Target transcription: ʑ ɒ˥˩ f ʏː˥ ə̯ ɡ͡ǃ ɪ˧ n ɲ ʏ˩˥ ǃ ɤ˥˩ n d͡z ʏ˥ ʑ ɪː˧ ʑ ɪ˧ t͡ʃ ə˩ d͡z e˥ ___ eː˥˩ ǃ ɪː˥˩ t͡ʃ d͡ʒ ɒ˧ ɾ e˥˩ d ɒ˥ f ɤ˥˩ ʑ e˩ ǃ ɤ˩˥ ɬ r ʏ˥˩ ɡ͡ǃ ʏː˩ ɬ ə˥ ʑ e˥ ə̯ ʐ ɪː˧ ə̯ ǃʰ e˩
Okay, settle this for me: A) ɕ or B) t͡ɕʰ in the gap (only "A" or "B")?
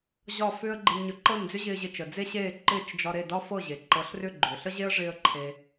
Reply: A